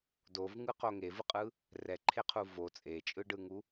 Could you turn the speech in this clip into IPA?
d o v ŋ ɯ q o ŋ e v ɯ qʼ ɯ | r ɛ ǃʰ e qʰ u v o t͡sʼ e t͡ʃʼ ɯ ɖ ɯ ŋ u

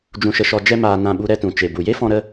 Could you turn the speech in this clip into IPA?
d͡ʒ ũ˧ ʃ ə˧ ʃ ɔ˧ d͡ʒ ɛ˦ m aː˧ n ã˦˨ ɓ u˦ ɾ ɛ˦ t ũ˨ t͡ʃ e˨ b u˨ j e˦ f ɔ̃˧ ɾ ə˧

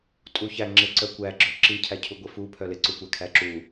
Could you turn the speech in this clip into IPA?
tʼ u ç æ ŋ͡ǁ ɪ ǀ œ kʷ æ ɡ͡ǁ œ ǁ i cʰ æ cʰ u ɡʷ ɪ f u pʰ œ l ɪ ǀ u kʷ æ kʰ æ ǁ u

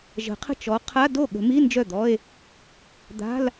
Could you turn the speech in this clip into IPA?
ʒ ə̤˨˩˦ qʰ ə̤˥˩ t͡ʃ ɔ˨˥ qʰ a˧˥˧ d o˥˩ ɠ ə̤˨˩˦ m i˧˥˧ n d͡ʒ œ˥˩ d̪ ɔ˧˥˧ e̯ | d̪ a̤˧˥˧ l

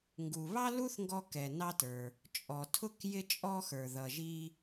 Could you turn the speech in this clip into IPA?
ŋ ɡ u˩ β ɑ˥ l u˥ θ ŋ ɡ ɔ˧ k ɛ˩ n ɑ˧ t ə˞˩ | t͡ʃʼ ɔ˩ tʰ ʊ˧ k j ɪ˧ t͡ʃʼ ɔ˧ x ə˞˩ ð ʌ˩ ʒ i˧

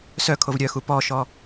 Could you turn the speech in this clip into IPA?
s œ kʰ o v ɾʲ œ x u p ɔ ʃ ɔ

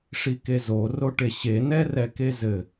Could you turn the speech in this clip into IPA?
ʂ i k e z o r o ʈ e ɕ e n ɛ r ɛ k e z ɘ

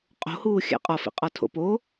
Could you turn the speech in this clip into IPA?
qʼ o̤ h uː xʲ æ̰ qʼ ɒ f ḭ qʼ ɒ tʰ o̰ p o

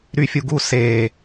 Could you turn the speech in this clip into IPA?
ɾ y fʲ u ɡ u s e

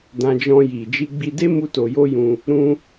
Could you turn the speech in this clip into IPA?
d ã˧ d͡ʒ ɔ̃˧ j i˨ d͡ʒ i˧ ɡ͡b i˧ d e˦ m u˦ t o˧ j o˦ j ũ˧ | ɾ ũ˦

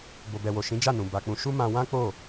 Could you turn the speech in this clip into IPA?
b o˨ b ɛ˨ w o˨ ʃ ĩ˨˦ d͡ʒ a˦˨ n ũ˨ b a˧ k͡p ũ˧ ʃ u˦ m ã˧ w ã˦ k͡p o˦˨

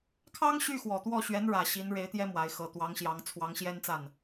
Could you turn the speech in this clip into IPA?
kʰ ɑ˥ ŋ ɕ y˥˩ x w ɔ˨˩ t̪ w ɔ˥˩ ɕ ɥ ɛ˧˥ n ɻ ä˨˩ ɕ i˧˥ n ɻ e˧˥ ɪ̯ t̪ j ɛ˥ m w a˧˥ ɪ̯ x ɤ˨˩ t̪ w ɑ˧˥ ŋ ɕ j ɑ˧˥ ŋ t͡sʰ w ɑ˧˥ ŋ ɕ j ɛ˥ n t͡s a˥˩ n

